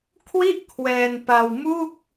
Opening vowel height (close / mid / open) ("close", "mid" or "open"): close